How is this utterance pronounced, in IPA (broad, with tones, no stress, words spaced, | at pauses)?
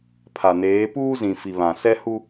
pʰa˨neː˨˦ puː˦zĩ˨ fi˨βã˨ sɛ˦hu˦